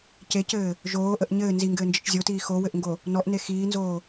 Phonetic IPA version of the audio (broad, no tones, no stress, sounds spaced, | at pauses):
c e c ɘː | ʒ oː ʔ ə ʔ ɲ ɘː n z i ŋ ɡ ɘː n d͡ʒ ɪ t͡ʃ zʲ o t iː x o w ɘ ʔ ŋ ɡ o | n ɔ ʔ n e x iː n z oː